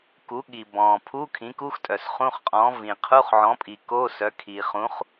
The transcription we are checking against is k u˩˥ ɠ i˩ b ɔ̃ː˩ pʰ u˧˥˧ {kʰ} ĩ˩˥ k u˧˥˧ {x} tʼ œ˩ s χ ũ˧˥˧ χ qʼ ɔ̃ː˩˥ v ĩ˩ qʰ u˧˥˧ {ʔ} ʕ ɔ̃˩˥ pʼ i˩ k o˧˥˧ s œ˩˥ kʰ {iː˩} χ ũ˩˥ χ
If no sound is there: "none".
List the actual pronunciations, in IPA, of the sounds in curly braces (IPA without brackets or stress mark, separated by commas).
kʰ, x, χ, iː˩